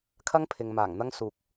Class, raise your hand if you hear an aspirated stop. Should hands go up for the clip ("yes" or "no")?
yes